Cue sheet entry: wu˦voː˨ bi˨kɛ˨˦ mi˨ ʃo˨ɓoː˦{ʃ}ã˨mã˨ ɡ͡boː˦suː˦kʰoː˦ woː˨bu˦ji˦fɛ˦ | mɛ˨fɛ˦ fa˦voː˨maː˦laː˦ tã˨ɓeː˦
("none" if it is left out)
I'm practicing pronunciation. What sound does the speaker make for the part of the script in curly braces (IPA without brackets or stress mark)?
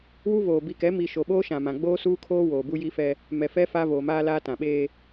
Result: ʃ